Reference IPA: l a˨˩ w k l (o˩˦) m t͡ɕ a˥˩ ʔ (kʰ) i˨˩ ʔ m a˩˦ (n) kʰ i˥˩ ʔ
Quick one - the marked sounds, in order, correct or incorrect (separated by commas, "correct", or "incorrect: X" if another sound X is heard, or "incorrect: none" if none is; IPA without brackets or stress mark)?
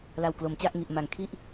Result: correct, incorrect: ŋ, incorrect: ŋ